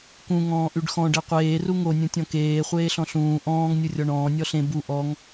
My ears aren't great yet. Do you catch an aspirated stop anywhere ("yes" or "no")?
no